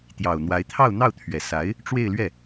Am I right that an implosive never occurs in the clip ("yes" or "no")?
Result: yes